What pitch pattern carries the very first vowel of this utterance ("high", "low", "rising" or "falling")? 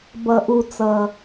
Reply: low